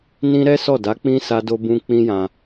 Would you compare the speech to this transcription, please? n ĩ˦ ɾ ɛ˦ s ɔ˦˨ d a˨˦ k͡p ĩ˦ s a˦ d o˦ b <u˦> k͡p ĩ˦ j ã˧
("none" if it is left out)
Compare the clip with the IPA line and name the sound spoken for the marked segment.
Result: ũ˦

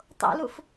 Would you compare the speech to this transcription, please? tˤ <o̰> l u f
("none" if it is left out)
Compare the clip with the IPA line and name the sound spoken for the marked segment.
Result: o̰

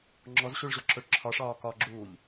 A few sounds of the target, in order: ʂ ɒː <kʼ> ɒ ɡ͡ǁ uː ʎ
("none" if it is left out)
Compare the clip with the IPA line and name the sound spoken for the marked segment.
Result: k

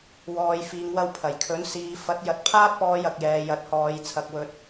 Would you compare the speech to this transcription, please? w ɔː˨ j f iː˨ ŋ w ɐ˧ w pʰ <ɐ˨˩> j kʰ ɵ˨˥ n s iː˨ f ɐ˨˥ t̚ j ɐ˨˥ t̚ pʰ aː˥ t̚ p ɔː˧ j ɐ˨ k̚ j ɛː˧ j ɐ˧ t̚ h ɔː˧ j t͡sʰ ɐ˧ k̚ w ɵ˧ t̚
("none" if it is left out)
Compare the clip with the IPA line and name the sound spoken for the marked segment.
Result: ɐ˨˩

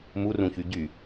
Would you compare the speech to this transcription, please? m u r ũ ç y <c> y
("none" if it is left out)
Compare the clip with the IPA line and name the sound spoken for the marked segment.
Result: ɟ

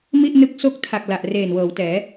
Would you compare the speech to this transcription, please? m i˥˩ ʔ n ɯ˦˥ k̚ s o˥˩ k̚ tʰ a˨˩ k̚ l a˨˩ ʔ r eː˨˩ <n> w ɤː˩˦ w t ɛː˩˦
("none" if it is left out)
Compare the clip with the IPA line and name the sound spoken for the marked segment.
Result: n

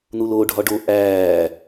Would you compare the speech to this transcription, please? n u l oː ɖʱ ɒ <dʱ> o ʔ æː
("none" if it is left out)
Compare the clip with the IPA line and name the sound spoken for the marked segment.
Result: ɖ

